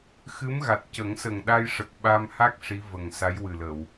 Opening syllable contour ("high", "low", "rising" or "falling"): rising